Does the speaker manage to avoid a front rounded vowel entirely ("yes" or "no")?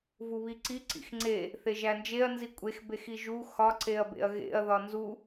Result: yes